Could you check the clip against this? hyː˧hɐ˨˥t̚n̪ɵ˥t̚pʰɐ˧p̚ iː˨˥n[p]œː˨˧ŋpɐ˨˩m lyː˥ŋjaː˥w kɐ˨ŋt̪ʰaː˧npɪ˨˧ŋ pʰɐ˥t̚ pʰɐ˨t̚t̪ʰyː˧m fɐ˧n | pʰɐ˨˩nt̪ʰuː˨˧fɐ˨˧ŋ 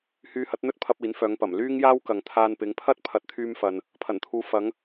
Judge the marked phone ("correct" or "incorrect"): incorrect